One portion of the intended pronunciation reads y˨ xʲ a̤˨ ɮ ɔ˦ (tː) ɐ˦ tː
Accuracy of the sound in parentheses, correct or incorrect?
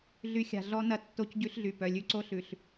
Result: incorrect